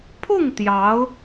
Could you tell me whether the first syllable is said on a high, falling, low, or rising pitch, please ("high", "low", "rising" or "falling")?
falling